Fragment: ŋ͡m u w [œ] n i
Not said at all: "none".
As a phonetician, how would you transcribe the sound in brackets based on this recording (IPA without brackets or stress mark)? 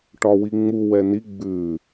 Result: ɛ